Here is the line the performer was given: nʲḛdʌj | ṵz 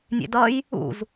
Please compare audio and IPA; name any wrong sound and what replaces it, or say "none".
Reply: none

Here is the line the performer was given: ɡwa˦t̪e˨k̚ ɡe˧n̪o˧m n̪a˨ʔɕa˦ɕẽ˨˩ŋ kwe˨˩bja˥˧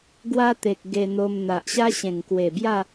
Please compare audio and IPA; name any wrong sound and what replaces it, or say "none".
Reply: none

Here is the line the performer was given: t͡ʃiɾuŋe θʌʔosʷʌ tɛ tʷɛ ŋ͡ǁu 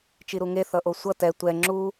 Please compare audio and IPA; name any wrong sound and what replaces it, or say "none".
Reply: none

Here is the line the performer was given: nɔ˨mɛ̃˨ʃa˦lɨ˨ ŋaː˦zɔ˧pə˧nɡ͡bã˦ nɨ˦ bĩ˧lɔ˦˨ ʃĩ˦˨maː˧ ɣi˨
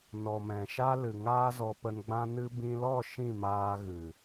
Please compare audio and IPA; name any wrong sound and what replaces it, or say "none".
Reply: i˨ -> ɨ˨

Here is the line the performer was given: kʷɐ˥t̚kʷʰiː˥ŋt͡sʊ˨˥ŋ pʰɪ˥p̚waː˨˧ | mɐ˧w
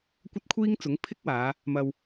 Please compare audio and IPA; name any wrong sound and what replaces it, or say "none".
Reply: p̚ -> k̚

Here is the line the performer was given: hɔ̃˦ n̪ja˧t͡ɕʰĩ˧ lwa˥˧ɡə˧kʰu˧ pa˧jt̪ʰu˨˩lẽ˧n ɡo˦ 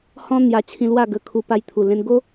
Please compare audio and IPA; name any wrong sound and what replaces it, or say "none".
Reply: none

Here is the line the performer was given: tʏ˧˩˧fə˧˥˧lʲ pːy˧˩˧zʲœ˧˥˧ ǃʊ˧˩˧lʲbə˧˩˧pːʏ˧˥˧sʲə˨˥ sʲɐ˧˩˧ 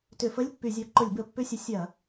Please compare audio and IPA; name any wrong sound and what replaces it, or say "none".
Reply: œ˧˥˧ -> œ˨˥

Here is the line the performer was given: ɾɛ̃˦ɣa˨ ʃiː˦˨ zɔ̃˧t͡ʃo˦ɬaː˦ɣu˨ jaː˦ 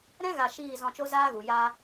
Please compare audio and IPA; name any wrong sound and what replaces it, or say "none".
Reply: ɬ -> z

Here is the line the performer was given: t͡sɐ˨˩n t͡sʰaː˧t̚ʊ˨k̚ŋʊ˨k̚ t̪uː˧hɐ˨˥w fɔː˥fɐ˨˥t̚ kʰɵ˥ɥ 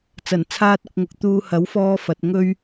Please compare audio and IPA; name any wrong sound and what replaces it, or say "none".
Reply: kʰ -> ŋ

